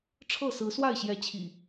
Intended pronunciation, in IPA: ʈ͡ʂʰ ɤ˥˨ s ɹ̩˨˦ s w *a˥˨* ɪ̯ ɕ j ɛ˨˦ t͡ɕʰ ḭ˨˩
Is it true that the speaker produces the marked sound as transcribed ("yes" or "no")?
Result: yes